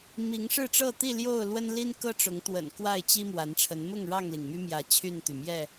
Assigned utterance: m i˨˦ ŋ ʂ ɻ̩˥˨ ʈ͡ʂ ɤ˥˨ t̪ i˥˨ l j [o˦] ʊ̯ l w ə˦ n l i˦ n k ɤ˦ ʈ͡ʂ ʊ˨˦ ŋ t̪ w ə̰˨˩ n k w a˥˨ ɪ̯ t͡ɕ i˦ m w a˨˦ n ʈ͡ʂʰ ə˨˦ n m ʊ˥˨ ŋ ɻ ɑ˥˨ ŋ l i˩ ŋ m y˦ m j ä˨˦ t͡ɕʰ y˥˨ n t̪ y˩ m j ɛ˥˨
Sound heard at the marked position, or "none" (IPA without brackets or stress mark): o˥˨